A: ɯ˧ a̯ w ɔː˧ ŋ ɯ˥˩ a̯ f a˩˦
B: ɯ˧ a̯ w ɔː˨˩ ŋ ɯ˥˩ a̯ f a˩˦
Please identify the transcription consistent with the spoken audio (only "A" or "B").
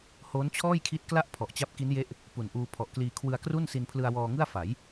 A